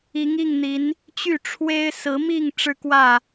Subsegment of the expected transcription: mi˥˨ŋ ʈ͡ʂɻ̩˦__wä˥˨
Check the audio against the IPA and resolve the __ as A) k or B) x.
A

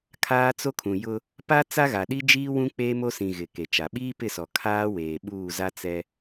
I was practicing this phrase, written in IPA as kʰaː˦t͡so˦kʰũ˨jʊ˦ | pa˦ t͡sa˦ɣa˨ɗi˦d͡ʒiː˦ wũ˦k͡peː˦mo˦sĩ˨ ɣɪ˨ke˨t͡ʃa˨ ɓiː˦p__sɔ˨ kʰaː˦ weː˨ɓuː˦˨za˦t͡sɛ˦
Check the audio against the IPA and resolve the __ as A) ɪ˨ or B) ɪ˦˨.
B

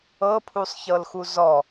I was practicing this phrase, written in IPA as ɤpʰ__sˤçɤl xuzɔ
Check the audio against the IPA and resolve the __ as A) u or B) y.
A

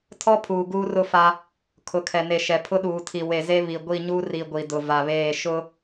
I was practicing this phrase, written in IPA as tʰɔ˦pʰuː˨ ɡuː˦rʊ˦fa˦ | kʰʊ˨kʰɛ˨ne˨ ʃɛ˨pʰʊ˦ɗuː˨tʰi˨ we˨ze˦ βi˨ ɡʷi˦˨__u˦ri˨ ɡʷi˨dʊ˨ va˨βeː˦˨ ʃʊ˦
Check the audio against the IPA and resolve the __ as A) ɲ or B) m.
A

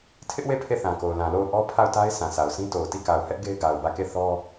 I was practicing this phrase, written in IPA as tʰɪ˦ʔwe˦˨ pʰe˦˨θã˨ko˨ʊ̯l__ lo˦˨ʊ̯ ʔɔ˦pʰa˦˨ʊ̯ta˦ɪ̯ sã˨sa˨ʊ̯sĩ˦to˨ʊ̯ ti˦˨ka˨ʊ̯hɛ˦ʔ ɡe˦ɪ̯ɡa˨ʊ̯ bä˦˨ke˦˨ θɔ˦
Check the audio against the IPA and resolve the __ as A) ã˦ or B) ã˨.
B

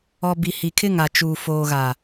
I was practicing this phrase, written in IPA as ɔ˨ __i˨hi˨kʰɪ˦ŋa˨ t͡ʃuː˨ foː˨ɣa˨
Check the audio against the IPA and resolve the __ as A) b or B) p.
A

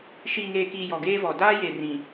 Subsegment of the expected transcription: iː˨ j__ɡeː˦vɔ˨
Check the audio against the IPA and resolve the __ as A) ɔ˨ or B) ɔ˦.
A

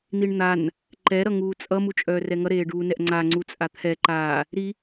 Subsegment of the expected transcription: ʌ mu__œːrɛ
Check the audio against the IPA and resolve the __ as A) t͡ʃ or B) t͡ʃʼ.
B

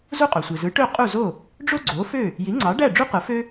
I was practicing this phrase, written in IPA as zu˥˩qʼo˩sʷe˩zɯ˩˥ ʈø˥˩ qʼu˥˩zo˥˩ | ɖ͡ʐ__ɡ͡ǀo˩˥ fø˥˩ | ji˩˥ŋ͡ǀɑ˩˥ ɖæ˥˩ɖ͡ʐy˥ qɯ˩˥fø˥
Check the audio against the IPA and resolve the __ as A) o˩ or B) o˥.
B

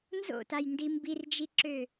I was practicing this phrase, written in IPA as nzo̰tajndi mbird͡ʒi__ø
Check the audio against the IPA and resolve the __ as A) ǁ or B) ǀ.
A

